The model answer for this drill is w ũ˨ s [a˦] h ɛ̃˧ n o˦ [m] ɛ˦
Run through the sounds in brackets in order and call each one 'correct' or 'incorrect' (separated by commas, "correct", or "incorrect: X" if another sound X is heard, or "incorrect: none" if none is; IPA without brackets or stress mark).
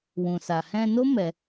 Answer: incorrect: a˨, correct